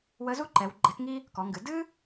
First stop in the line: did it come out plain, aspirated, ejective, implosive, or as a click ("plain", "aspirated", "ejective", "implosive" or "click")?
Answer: click